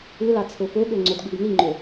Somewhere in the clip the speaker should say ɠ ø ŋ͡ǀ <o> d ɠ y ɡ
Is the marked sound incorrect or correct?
correct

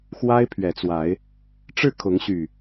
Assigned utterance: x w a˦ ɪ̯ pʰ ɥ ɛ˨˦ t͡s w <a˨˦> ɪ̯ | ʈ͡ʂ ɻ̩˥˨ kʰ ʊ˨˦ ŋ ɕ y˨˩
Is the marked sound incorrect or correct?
correct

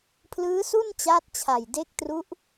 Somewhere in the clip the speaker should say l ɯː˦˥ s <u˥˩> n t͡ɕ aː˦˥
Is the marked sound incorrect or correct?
correct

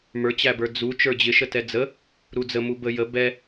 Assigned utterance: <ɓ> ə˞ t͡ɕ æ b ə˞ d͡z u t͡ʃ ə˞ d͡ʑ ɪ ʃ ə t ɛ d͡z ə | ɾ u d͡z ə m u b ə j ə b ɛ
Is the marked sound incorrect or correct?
incorrect: m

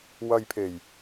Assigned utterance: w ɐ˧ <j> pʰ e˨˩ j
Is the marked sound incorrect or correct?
correct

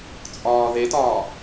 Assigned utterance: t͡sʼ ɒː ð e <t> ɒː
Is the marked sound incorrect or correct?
correct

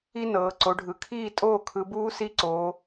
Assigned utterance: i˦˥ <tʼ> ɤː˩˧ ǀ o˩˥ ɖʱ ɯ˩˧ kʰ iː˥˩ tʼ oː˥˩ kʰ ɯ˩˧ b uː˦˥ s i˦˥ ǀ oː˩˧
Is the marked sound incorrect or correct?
incorrect: n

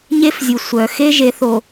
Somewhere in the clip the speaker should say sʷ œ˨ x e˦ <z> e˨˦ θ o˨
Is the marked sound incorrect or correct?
incorrect: ʒ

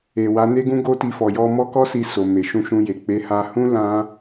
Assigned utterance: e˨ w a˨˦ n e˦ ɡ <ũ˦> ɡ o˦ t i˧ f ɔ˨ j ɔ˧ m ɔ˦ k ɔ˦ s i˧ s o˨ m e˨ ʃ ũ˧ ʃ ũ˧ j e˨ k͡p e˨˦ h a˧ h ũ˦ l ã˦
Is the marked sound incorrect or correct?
correct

